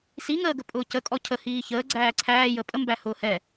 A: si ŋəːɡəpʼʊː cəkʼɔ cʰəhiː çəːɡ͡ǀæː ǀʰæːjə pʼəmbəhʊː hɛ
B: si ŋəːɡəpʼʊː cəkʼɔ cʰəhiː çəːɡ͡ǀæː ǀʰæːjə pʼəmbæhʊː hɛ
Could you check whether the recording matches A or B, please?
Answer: B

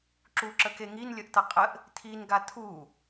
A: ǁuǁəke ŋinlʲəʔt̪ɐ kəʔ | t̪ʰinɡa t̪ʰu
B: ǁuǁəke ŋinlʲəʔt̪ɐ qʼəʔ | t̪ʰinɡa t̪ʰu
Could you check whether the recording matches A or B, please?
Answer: B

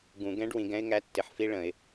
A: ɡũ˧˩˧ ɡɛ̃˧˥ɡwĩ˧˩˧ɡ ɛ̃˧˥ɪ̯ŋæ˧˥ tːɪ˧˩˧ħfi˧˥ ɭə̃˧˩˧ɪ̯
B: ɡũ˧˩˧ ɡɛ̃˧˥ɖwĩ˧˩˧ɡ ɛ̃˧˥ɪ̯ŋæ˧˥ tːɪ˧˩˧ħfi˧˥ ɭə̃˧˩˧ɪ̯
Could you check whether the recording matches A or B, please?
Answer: B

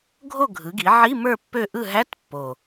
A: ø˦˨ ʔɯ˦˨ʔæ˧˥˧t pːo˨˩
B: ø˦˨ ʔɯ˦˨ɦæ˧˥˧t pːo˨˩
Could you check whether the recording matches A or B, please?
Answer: B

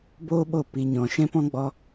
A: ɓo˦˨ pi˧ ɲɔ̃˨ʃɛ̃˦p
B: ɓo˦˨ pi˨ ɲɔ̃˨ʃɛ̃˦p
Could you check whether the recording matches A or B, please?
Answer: A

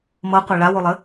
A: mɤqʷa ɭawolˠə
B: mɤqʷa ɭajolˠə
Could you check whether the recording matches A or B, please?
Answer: A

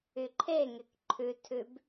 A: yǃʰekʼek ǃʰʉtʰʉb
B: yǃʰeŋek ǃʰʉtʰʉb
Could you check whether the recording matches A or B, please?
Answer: B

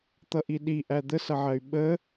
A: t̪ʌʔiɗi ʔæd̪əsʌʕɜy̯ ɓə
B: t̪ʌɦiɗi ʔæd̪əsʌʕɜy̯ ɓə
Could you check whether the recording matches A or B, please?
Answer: A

